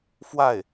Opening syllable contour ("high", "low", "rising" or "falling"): falling